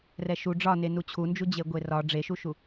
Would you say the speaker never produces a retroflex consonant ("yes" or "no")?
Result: no